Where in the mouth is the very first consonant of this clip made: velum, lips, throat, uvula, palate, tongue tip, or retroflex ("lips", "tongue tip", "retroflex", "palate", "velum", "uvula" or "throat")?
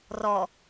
tongue tip